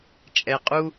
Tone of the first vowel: low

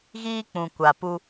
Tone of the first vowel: high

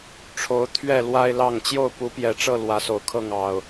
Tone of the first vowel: rising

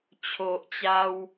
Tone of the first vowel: low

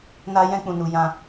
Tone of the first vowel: high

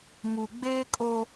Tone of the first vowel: low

